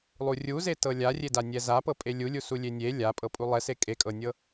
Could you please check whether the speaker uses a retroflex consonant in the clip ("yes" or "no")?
no